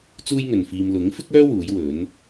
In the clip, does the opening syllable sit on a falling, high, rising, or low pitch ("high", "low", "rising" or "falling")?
high